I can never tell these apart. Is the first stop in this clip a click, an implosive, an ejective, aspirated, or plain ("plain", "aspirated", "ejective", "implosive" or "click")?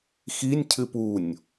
aspirated